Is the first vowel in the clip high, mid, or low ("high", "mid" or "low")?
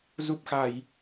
high